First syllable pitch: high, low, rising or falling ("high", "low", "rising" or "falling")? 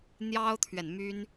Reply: high